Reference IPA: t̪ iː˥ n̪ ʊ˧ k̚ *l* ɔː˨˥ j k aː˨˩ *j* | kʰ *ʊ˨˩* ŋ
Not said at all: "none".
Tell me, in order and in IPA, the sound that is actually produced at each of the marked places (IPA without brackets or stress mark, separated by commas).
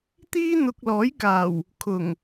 l, w, ʊ˨˩